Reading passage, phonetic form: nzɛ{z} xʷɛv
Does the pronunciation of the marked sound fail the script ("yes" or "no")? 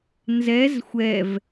no